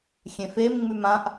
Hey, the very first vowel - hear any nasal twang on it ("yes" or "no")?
yes